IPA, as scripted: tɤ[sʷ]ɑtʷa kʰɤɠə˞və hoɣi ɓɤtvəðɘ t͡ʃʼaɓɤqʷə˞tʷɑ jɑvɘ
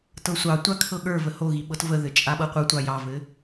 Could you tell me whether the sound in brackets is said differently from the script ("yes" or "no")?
no